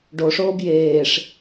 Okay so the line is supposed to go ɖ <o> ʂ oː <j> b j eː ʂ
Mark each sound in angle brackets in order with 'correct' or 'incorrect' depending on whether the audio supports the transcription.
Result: correct, incorrect

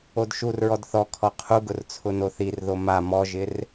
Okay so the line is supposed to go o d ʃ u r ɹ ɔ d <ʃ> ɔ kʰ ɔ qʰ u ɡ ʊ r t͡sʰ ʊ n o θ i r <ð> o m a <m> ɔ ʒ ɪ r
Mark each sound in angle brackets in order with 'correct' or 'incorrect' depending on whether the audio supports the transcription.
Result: incorrect, correct, correct

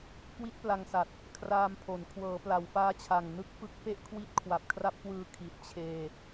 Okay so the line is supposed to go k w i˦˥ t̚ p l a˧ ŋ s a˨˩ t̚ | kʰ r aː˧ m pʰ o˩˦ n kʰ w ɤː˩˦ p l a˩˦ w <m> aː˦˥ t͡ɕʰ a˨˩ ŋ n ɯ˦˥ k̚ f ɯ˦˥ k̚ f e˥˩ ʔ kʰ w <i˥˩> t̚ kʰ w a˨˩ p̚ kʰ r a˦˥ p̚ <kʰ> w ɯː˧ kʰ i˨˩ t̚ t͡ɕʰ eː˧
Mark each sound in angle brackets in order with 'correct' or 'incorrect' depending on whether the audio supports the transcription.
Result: incorrect, incorrect, incorrect

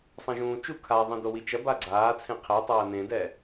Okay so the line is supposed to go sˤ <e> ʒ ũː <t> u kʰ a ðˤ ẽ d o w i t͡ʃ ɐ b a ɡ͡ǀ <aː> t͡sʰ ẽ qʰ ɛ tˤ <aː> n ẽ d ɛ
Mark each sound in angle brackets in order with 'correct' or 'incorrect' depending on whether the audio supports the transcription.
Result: incorrect, incorrect, correct, incorrect

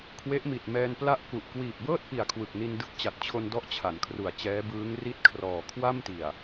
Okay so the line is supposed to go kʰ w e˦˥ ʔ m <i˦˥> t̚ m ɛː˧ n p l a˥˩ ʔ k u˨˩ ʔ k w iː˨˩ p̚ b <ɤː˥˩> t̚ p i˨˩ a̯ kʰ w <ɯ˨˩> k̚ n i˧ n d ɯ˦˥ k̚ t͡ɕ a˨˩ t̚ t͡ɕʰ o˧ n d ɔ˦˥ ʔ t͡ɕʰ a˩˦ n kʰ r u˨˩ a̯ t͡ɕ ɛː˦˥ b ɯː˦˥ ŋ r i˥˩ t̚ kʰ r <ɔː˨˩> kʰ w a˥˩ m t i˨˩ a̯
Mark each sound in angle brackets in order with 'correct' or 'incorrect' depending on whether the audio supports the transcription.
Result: incorrect, correct, correct, correct

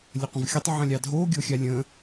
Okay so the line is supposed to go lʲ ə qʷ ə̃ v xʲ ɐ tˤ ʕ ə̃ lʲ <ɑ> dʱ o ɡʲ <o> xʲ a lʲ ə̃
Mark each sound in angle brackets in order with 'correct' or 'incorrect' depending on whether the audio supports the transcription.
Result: correct, correct

